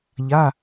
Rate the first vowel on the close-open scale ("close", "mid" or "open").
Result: open